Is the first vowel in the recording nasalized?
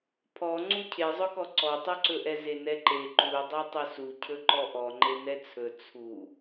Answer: no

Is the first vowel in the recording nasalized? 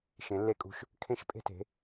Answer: yes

